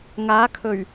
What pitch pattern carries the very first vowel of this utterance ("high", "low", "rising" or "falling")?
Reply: rising